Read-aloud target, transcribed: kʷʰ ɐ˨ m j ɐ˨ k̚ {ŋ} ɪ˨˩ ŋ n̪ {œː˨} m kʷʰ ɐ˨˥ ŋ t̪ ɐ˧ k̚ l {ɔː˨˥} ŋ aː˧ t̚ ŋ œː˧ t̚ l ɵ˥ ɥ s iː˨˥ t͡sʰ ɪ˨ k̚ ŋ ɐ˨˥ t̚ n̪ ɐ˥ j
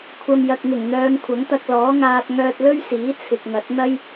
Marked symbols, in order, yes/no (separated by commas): yes, no, yes